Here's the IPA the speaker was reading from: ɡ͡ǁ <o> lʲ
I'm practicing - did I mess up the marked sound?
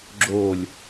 no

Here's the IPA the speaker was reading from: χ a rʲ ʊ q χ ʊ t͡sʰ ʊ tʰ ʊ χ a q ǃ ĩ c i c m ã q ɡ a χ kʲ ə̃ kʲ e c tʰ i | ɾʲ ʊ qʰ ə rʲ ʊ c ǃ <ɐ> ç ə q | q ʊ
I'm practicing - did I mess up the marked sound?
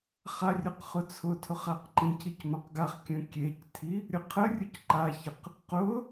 yes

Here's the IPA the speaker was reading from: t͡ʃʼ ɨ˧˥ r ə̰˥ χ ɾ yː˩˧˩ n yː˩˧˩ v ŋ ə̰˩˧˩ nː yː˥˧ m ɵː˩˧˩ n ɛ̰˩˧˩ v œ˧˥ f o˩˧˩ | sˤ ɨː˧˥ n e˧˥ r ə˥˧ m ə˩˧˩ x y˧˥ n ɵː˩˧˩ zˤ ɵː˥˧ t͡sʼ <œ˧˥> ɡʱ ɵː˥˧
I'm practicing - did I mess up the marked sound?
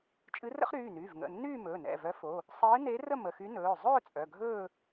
yes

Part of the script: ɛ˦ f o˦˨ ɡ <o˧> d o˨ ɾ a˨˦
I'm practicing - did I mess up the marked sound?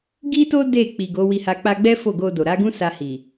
no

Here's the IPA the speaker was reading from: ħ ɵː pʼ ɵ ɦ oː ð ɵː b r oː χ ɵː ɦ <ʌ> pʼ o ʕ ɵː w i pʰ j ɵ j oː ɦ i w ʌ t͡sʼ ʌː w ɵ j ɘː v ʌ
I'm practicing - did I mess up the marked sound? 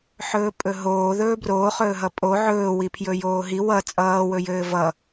no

